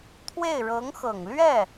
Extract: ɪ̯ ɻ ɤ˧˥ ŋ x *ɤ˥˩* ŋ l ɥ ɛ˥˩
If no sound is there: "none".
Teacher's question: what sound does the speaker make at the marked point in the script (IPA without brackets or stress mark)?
ɤ˨˩